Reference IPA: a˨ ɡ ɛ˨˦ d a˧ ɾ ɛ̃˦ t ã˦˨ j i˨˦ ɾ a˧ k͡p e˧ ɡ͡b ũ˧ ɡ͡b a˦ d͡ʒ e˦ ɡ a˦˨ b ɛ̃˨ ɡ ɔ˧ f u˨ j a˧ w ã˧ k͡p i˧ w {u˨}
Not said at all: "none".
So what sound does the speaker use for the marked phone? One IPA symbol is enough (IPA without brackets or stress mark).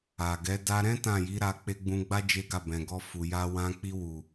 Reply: u˨